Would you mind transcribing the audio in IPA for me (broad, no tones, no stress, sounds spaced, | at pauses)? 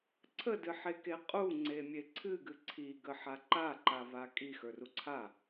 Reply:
ǀʰ ə d ɨ ħ e k e qʼ u ŋ͡ǀ e mʲ e ǀʰ ɨ ɡ ɨ ǀʰ i ɡ ə ħ a ǃ a ǃ a v a kʼ i x ə˞ r u ǀʰ a